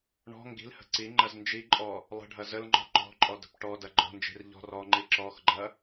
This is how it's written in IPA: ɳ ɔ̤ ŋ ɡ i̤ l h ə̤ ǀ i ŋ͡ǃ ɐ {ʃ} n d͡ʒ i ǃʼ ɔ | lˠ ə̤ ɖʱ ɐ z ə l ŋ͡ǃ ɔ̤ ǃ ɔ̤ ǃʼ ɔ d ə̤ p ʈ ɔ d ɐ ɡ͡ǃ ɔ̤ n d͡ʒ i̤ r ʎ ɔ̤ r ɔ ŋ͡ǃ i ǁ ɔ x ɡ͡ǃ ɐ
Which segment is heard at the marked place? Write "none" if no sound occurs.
z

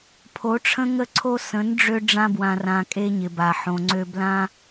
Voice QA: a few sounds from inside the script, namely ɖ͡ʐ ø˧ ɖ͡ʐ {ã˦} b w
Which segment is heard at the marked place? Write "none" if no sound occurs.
ã˧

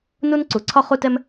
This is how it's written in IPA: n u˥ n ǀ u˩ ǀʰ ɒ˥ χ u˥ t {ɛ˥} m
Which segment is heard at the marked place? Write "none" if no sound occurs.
ɛ˥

